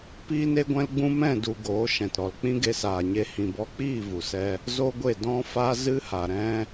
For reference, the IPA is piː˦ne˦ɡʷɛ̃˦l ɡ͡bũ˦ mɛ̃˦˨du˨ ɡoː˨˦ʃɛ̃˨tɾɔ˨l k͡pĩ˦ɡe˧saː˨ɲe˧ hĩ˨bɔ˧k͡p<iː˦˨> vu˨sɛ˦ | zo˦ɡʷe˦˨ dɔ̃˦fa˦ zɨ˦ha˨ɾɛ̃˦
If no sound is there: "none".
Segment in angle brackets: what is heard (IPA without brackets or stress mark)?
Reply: iː˦˨